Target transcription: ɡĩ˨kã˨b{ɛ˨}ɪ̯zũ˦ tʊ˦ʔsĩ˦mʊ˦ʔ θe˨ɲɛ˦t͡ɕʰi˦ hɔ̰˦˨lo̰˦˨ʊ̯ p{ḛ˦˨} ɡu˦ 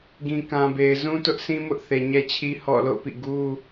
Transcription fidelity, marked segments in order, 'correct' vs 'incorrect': incorrect: e˨, incorrect: ḭ˦˨

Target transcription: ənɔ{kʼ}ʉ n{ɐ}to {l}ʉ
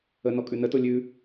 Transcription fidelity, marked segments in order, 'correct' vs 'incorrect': correct, incorrect: ə, incorrect: lʲ

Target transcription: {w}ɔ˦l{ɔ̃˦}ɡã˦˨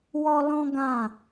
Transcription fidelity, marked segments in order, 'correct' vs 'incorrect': correct, correct

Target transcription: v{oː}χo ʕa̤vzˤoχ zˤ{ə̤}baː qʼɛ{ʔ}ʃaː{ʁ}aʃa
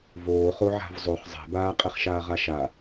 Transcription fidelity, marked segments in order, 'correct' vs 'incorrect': correct, incorrect: ɛ̤, incorrect: χ, correct

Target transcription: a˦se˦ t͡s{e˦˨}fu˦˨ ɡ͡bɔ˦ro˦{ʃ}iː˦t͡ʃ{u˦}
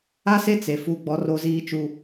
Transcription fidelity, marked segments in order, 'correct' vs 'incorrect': incorrect: e˨, incorrect: z, correct

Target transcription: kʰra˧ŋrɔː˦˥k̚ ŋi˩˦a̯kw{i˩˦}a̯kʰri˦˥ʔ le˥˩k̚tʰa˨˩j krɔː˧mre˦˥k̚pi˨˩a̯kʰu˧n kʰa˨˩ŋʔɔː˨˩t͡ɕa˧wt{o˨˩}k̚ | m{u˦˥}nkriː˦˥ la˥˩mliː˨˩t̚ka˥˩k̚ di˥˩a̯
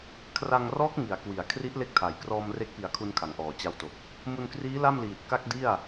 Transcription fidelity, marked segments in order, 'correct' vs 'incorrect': correct, correct, incorrect: u˧

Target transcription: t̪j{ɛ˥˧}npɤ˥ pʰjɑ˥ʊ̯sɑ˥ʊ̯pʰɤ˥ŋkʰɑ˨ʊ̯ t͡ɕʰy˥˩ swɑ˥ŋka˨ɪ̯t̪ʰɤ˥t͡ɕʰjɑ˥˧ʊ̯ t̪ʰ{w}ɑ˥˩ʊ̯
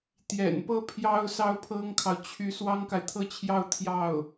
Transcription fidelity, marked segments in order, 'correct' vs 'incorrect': incorrect: ɛ̰˨˩, incorrect: j

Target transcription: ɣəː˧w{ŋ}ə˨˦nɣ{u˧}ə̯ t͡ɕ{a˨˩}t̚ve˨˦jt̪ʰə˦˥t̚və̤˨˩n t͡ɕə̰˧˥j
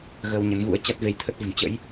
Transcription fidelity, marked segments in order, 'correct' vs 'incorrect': incorrect: ɲ, incorrect: ṵ˧˥, incorrect: a˦˥

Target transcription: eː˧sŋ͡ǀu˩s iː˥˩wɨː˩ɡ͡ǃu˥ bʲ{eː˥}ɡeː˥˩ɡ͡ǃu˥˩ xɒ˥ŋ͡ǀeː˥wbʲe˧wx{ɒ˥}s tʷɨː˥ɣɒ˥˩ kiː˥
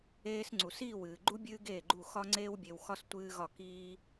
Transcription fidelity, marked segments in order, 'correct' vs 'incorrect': incorrect: ɨː˥, correct

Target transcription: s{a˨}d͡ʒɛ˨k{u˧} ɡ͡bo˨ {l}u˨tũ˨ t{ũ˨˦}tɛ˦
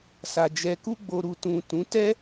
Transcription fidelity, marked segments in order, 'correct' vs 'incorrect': correct, correct, incorrect: ɾ, correct

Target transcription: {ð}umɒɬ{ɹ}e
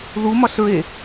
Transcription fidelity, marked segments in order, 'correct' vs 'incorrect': correct, correct

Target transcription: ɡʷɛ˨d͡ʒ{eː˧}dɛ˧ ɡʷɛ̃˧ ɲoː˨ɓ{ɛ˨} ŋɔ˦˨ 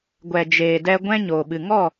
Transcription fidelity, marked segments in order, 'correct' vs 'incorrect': incorrect: eː˨, incorrect: ɨ˨

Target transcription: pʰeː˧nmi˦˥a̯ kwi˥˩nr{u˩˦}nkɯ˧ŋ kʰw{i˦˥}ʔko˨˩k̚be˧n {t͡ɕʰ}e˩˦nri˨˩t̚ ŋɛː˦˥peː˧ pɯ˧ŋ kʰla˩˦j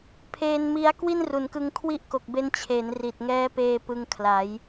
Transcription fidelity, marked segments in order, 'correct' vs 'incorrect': correct, correct, correct

